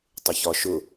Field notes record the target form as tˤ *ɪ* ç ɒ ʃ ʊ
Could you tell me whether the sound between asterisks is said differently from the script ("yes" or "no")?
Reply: no